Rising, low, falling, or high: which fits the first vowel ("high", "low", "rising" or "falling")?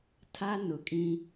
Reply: high